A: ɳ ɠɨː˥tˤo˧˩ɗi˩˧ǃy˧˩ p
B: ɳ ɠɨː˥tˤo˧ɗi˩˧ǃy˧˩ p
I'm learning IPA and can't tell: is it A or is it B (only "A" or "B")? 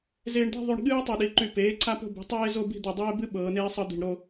A